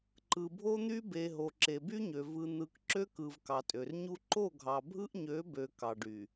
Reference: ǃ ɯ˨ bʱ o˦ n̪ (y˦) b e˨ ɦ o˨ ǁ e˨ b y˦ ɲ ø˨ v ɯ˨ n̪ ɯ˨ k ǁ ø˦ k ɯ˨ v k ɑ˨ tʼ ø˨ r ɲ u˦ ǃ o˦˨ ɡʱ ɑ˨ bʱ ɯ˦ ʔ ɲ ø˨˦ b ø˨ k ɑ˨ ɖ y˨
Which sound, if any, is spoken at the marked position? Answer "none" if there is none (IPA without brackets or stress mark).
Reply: y˦